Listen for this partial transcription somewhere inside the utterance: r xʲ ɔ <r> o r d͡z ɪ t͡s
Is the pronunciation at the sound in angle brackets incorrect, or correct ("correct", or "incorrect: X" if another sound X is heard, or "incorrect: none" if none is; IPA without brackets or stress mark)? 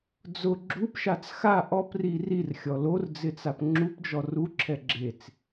incorrect: l